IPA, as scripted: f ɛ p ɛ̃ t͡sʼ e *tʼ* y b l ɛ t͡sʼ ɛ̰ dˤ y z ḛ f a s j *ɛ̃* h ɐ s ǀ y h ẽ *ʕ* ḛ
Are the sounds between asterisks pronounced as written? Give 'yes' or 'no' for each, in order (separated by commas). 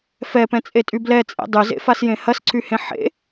yes, no, no